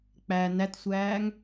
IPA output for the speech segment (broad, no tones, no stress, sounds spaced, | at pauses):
k͡p æ n æ t sʷ æː ŋ